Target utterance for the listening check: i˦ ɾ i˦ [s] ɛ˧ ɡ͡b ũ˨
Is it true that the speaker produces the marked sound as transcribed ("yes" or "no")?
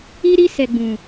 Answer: yes